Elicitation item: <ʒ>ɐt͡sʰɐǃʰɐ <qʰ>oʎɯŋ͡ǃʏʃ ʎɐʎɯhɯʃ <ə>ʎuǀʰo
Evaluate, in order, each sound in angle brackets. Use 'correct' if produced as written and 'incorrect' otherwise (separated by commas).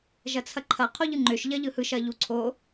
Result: correct, correct, incorrect